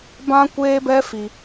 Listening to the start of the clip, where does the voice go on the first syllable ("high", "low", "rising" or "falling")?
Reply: high